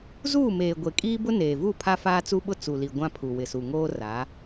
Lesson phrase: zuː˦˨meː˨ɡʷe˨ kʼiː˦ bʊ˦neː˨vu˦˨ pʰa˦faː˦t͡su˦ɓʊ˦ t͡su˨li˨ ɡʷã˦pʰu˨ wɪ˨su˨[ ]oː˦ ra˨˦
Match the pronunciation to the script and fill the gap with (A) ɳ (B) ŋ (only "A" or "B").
B